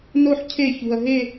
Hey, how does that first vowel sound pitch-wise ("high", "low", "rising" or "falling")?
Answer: falling